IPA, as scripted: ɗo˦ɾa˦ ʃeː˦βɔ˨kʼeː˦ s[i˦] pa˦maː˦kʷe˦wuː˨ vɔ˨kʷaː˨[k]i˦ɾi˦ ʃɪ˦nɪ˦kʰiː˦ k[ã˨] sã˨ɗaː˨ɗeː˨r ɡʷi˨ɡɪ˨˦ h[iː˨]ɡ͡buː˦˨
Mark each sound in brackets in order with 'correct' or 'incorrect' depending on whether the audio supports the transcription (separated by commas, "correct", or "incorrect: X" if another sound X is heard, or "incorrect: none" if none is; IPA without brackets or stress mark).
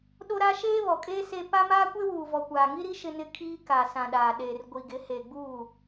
incorrect: e˦, incorrect: ŋ, incorrect: a˨, incorrect: eː˨